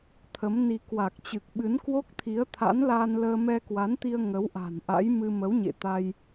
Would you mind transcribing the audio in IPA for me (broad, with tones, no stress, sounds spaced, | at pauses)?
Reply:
t̪ʰ ə˨˦ m n i˧ k w a˨˩ k̚ t͡ɕ ɨ˨˩ k̚ ɓ ɨ˨˦ n k w o˦˥ k̚ t̪ʰ i˨˦ ə̯ t̪ʰ a̰˧˥ n l aː˧ n l əː˧ m ɛ˧ k w a˨˦ n t̪ i˧ ə̯ ŋ ə˨˦ w ʔ a̤˨˩ n ʔ a̰˧˥ j m ɨ˧ m ə˨˦ w ɲ ḛ˧˨ t̪ a˧ j